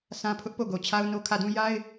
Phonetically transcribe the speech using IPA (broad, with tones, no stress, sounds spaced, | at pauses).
s ã˦ pʰ ʊ˦ ʔ p o˦˨ ɡ o˨ t͡ɕʰ a˦ ʊ̯ n o˦ kʰ ä˦˨ d ũ˦ j a˦ ɪ̯